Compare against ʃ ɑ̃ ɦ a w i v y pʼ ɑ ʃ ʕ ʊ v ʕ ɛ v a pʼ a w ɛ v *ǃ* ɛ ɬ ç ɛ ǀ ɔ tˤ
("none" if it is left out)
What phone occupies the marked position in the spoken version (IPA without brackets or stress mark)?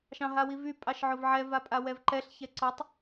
ǃ